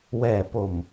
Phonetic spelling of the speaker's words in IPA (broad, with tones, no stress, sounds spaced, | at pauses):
w ɛː˨˩ p o˨˩ m